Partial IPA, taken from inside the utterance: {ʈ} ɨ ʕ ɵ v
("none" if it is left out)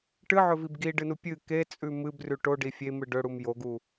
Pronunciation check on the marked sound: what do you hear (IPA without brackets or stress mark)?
ʈ